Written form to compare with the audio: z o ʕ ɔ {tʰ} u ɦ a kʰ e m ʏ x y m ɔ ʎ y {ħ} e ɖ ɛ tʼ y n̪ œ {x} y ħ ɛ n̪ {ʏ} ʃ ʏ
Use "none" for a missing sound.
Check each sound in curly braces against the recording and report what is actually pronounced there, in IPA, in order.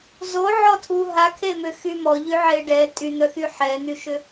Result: tʰ, ʕ, x, y

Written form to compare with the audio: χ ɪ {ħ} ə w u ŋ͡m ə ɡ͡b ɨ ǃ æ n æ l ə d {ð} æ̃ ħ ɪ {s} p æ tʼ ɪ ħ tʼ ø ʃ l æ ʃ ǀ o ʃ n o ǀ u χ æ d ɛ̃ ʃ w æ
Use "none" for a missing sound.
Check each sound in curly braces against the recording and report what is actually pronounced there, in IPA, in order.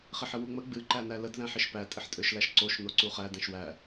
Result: ħ, ð, ʃ

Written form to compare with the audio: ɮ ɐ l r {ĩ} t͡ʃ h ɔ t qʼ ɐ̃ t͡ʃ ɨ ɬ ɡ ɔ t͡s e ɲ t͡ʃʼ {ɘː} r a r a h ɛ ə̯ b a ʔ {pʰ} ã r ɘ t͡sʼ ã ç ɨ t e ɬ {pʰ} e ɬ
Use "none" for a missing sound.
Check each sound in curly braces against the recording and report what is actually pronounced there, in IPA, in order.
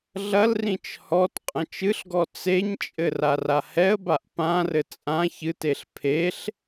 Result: ĩ, ɘ, p, pʰ

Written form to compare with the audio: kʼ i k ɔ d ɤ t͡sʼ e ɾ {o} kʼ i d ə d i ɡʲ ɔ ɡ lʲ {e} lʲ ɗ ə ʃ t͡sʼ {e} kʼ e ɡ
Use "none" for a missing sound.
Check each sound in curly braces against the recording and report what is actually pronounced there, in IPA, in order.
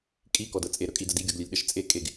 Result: ɵ, e, e

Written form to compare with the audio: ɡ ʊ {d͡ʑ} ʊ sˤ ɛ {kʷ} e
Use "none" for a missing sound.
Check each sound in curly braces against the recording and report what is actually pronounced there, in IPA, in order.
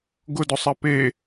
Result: d, p

